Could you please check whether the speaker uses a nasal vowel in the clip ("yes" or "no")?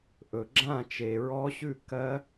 yes